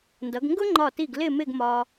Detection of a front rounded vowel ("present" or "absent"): absent